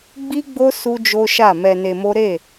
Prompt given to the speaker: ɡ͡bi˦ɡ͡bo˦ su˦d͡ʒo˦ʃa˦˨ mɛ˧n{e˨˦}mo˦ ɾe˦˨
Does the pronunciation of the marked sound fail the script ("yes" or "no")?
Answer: yes